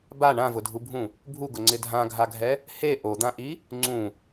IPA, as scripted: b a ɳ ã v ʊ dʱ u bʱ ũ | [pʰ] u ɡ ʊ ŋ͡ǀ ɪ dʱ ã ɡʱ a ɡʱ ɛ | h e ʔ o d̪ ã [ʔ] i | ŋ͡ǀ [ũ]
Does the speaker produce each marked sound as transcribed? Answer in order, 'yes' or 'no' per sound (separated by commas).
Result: no, yes, yes